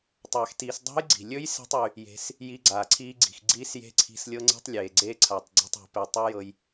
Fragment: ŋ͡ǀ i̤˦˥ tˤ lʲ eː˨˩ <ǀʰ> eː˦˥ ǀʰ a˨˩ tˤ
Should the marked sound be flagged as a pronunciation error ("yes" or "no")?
yes